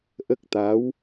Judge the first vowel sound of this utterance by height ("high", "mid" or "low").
mid